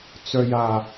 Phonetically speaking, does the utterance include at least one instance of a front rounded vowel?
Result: yes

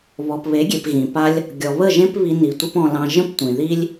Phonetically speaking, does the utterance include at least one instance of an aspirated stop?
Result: no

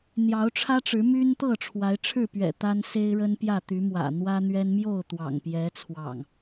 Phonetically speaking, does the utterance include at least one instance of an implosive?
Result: no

